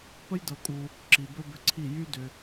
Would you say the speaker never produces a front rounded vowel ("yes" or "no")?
no